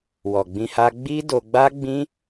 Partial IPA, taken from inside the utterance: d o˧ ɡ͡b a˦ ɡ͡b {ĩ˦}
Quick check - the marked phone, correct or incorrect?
correct